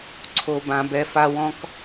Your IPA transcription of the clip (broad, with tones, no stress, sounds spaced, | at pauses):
ǀʰ o˨ b ã˨ b ɛ˨ f a˨ w ɔ̃˨ k